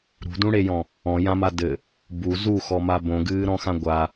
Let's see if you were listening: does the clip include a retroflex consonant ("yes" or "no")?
yes